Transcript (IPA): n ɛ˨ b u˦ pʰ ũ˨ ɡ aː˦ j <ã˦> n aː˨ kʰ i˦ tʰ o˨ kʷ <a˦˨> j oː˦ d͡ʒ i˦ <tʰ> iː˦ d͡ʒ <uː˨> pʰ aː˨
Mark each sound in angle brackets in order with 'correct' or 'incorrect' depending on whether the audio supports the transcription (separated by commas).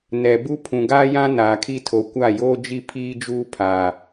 correct, correct, incorrect, incorrect